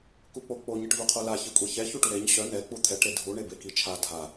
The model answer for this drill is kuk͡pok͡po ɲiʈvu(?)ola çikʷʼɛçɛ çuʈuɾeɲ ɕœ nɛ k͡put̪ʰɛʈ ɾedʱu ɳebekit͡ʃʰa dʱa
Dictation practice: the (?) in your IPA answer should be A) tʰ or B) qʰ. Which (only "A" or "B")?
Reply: B